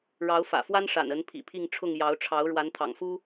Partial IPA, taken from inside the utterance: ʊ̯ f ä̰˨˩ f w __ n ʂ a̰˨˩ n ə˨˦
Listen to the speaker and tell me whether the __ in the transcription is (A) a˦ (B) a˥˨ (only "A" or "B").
A